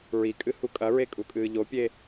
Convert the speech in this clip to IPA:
ɹ i kʼ ɨ h u kʼ ɐ ɹ e kʼ u kʼ ɨː ʎ o pʲ e

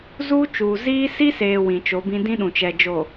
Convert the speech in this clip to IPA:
z uː˦ t͡ʃ uː˨ z iː˦ s i˦ s eː˨ w ĩ˨ t͡ʃ o˨˦ b ĩ˦ d ĩ˦ ɗ ũ˨ t͡ʃ ɛ˨ d͡ʒ o˨

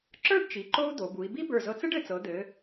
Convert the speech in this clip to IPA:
ǁ ə˞˥˧ ɖ t͡ʃ i˩˧ ǃ o˥ u̯ d̪ o˩˧ b u˩˧ i̯ b i˥ b ə˞˧˩ z ɤ˧ t͡s ɘ˥ ɖ ɘ˧˩ t͡s ɤ˩˧ d̪ ɘ˩˧

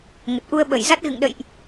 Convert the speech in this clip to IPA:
ŋ ə˨˩ t̚ ʔ u˧ ə̯ ɓ ə˧˩ j z a˦˥ t̚ ɣ ɨ̰˧˨ ŋ ɗ ə̰˧˨ j ʔ

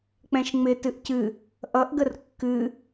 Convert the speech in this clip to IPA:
k͡p ɛ̃ ʃ ŋ͡m ɪ t ɨ ʔ c ɨ | ʔ ʌ ʔ ɡ ə r kː ɨ

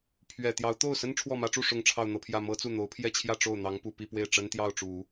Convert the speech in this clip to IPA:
pʰ ɥ ɛ˨˩ t̪ j ɑ˧˥ ʊ̯ t̪ o˥˩ ʊ̯ s ə˥ n ʈ͡ʂʰ w ɔ˥˩ m ä˥ ʈ͡ʂ u˥˧ ʂ ʊ˥˧ ŋ ʈ͡ʂʰ ɑ˥˧ ʊ̯ n̪ ɤ˥˧ pʰ j ä˥˩ m ɤ˥ t͡s u˥˩ n̪ o˧˥ ʊ̯ pʰ j ɛ˥˧ t͡ɕʰ j ä˥˧ ʈ͡ʂ o˥˩ ʊ̯ n̪ ɑ˧˥ ŋ p u˨˩ p i˥˧ p w e˥˩ ɪ̯ ʈ͡ʂ ə˥ n t̪ j ɑ˥˩ ʊ̯ ʈ͡ʂ u˨˩˦

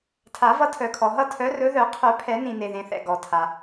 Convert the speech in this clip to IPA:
tʰ a˨˩˦ v ʌ˨˦ tʰ œ˩ kʰ ɔ˩ ɦ ʌ˥˧ tʰ œ˨˦ r ɵ˨˦ ð œ˨˩˦ qʰ œ˨˩˦ pʰ ɛ˨˩˦ n ĩ˩ n e˩ ð ẽ˩ θ ɛ̰˩ ɡ ɔ˩ tʰ a˩

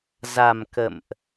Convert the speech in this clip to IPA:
z a˨˩ m k ə̰˧˨ m ʔ

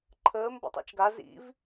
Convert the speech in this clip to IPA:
ǃʰ əː m b ɔ̰ tˤ a̰ t͡ʃ ɡ a z ḭ v

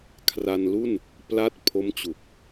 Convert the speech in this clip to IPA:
kʰ r a˧ n l u˥˩ n | p l a˦˥ t̚ pʰ o˦˥ m t͡ɕ u˨˩ k̚

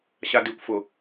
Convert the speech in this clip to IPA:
ɕ a d i kʷ f ʊ

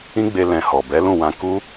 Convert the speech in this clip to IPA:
ĩ˦ ɡ͡b e˧ l ɛ̃˨ h ɔ˨ b ɛ˨˦ l ũ˦˨ w ã˧ k u˦

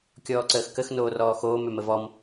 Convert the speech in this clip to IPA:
kʲ ɔː ǀ əː x k ə x n oː r ɔː x oː m ø m ə v ɔ m

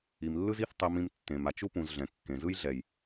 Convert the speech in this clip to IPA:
i˨ m lː ɯ˦ z i˦ θ tˤ i˧ m ĩ˧ m tː ẽ˨ m a˨ t͡ʃ u˦ p ũ˨ z ɮ ɛ̃˨ kː ẽ˨ z ɯ˦ j ɮ ɛ˨ j

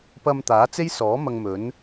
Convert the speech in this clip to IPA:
p ɐ˧ m t̪ aː˨˥ t͡s e˥ j s ɔː˨˥ m ɐ˧ ŋ m ɵ˨˥ n

